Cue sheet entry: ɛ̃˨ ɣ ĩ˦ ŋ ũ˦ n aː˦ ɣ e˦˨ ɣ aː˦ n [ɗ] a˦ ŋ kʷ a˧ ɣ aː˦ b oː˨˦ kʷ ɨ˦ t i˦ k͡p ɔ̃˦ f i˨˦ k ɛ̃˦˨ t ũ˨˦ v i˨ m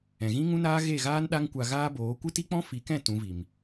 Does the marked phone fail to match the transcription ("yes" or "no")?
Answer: no